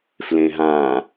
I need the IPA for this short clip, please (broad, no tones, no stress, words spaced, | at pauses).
flẽɦã